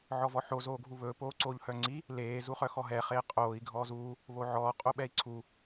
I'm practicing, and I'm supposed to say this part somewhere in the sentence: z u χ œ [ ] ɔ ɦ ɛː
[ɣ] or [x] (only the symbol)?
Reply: x